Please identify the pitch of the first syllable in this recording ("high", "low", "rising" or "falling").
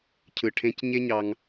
low